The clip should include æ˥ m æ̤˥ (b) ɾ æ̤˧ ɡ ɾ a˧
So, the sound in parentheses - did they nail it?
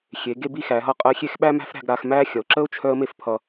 no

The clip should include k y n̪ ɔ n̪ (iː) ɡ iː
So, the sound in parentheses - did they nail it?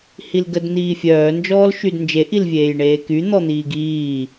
yes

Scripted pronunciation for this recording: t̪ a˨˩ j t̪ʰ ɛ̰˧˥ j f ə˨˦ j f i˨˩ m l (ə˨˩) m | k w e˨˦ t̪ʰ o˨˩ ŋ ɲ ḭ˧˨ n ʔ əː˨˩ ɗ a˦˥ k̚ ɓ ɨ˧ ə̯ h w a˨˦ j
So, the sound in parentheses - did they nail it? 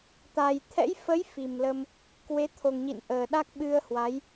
no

